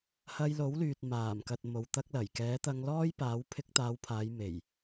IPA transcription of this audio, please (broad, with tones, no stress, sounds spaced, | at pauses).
h ɐ˧ j l o˨˥ w l yː˨ t̚ m aː˨˩ m k ɐ˨ t̚ m o˨ w t̪ ɐ˥ k̚ l ɐ˨˩ j k ɛː˨˥ t̪ ɐ˧ ŋ l ɔː˥ j p aː˨˥ w pʰ ɪ˧ k̚ t̪ aː˨˧ w pʰ aː˨˧ j m e˨˩ j